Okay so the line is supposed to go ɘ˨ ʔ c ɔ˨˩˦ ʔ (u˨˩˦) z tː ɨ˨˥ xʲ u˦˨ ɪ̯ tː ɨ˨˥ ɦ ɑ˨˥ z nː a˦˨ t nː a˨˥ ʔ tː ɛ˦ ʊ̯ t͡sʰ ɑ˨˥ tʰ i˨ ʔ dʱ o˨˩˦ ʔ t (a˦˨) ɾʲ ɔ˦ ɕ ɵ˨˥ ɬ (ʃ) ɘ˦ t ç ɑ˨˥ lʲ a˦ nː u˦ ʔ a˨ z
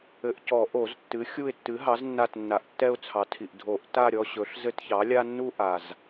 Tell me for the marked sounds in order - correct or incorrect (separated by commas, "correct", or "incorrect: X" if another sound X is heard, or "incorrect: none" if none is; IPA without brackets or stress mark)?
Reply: incorrect: o˨˩˦, correct, incorrect: z